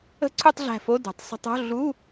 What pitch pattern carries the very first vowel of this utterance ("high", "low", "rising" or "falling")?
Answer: falling